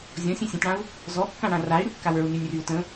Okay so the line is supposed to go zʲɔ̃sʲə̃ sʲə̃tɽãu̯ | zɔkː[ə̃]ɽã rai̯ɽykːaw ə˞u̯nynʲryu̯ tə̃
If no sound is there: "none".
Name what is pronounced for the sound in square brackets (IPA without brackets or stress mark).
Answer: ã